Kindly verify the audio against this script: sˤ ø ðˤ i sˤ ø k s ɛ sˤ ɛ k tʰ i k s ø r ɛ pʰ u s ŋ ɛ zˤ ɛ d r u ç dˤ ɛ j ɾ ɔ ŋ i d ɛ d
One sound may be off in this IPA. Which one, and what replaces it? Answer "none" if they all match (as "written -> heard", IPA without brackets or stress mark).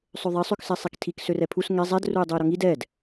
ç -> j